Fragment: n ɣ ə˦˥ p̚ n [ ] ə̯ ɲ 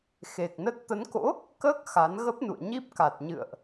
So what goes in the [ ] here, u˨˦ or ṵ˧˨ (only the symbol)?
ṵ˧˨